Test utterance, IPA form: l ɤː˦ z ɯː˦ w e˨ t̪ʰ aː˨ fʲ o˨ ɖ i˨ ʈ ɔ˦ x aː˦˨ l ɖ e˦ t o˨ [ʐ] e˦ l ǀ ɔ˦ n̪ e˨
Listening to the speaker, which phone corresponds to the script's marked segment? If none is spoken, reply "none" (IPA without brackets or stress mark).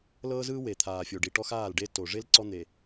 ʐ